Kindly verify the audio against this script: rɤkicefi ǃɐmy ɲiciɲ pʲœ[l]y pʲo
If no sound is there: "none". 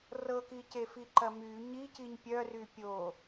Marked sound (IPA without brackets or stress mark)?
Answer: r